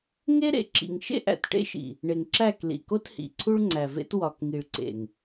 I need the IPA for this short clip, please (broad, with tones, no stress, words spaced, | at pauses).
ŋe˦ɾḛ˨ ǁḭ˨ŋʃḛ˦ʔæ̰˨t ʈḛ˦ʃḭ˨ | ɳe˨ŋǁæ˦˨k lḭ˨ko˦thḭ˨ ǀʰu˦ɭŋ͡ǀæ˨vḛ˦t wɒ˨kŋi˨ɭǀḛ˨ŋ